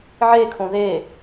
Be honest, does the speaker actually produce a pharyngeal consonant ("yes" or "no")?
yes